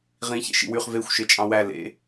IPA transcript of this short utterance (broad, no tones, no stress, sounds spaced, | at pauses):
ʁ ĩ ç ḛ ʃ ḭ w y χ v e xʷ ʃ e t͡ʃʼ ɑ̃ w æ l ḛ